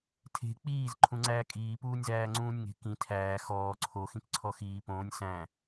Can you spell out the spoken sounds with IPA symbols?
tʰ e̤ k͡p iː z ǃʰ ũ ŋ͡ǀ æː kʼ iː p uː nʲ z æː ŋ͡ǀ ũː nʲ ŋ e̤ k ĩ tʰ æː x ɔː ǀʰ o x ĩ k ǀʰ ɔ x iː p õː nʲ s æ̃

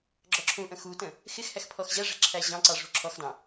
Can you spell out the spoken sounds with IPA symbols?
ɡ͡ǁ ɔ ǁʰ ũ ʔ ə̃ x u t ə̃ | x ɪ x h æ x pʰ ɔ x ʑ æ ʐ ɛ̤ ǁʰ æ ʑ ɑ̃ ǀ ɑ ʐ ṳ ǁʰ ɔ x d ɑ̃

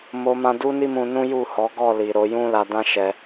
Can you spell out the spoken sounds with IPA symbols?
m o˧ m ã˧ d u˦ n i˦ m ũ˧ n ũ˦ j u˦˨ h ɔ˨˦ ɡ ɔ˦˨ l i˨ ɾ o˨˦ j ũ˦ l a˧ d ã˦ ʃ ɛ˧

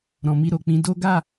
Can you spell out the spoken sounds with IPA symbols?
ɾ ɔ̃˨ m i˧ ɾ o˨ k͡p ĩ˧ d o˦ ɡ a˦˨

